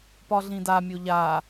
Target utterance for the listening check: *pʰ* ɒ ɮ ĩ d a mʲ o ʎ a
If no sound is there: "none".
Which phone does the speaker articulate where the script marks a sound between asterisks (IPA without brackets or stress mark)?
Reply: p